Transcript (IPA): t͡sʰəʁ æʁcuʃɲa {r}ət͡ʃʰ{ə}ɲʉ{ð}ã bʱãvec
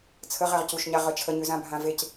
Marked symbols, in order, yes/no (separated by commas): no, yes, no